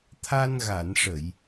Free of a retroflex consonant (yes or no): no